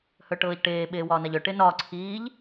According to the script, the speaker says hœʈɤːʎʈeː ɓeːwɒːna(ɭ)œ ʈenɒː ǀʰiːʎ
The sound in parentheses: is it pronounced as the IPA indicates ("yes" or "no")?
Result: no